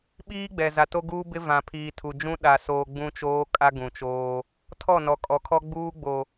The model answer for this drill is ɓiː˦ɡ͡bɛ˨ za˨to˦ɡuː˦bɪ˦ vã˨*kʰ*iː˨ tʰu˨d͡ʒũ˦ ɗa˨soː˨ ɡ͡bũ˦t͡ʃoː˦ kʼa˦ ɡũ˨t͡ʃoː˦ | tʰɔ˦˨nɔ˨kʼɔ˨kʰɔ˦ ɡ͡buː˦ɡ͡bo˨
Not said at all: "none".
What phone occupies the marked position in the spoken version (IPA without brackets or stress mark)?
pʰ